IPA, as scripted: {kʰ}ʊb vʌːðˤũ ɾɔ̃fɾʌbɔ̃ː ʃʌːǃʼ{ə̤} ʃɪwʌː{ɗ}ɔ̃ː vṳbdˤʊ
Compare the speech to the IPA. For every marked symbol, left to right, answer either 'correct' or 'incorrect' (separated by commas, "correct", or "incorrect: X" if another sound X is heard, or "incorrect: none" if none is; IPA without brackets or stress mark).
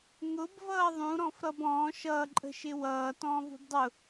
incorrect: ŋ, correct, incorrect: t